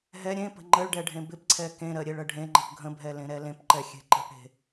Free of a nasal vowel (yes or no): no